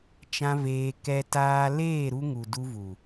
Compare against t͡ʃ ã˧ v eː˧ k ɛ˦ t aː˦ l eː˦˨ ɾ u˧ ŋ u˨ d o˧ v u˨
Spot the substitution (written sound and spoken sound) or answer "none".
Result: o˧ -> u˧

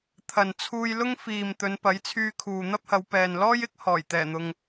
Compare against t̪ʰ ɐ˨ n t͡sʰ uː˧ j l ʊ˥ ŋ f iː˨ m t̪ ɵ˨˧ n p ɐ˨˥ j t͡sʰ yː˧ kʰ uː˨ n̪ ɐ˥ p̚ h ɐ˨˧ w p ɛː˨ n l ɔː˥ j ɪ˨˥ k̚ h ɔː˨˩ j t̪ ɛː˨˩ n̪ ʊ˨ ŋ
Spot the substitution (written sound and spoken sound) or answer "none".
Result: none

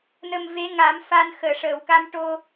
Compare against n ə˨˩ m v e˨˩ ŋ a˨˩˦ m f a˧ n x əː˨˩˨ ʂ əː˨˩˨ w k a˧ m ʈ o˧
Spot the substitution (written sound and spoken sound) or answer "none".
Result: e˨˩ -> e˧˥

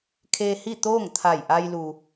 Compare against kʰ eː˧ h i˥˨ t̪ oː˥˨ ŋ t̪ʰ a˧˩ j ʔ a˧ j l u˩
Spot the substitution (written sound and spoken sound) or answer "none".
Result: none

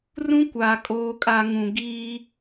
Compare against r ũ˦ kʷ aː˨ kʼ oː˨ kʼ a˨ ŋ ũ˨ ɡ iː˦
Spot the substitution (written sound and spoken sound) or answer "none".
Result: none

